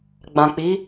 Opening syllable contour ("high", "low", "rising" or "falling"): low